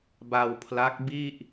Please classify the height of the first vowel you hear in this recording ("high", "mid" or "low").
low